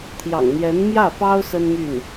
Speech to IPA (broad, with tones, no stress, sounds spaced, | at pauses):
t̪ʰ j ɑ̰˨˩ ŋ n̪ j ɛ˧˥ n m j ä˥˩ f ɑ˥ ʊ̯ s ə˥ n m y˥˩ n